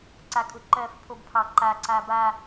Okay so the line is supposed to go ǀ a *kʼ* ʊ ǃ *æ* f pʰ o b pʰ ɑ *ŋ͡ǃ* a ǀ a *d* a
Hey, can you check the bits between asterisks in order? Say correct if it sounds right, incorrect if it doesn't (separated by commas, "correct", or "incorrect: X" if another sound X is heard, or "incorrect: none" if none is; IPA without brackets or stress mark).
correct, incorrect: ɜ, incorrect: ǃ, incorrect: b